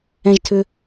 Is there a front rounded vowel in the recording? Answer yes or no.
yes